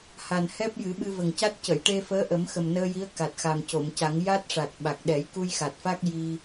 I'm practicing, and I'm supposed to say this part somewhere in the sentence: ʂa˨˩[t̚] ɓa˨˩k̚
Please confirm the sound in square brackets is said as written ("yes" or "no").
yes